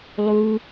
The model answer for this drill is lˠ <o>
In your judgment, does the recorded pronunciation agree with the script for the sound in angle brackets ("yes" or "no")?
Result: no